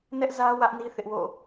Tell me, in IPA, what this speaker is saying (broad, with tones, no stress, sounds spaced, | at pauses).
n ɛ˦ ʔ z ä˦ w ä˦ ʔ n i˦ θ ɪ˦ ʔ w o̰˦˨